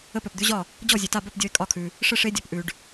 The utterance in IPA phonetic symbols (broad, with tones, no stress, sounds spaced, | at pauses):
ə˦ p œ˨ p d̪ ʉ˦ ʑ ɒ˥˨ | d͡ʑ ɔ˥˨ zʲ ʉ˨ t a˥˨ b œ˥˨ p dʲ ɔ˦ ɪ̯ kʼ ɒ˥˨ kʰ ʉ˨ | ʂ ə˥˨ ʂ e˦ dʲ ɒ˨ p ʔ ʉ˨ ɖ